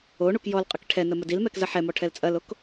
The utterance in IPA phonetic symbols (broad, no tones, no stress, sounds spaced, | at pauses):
o ɳ u k j ɔ l qʼ ə k ʈʰ ɛ n ə m ə d i l m ɛ k z ɐ ħ ɛ m ɔ ʈʰ ɛ l t͡sʼ ɐ l o k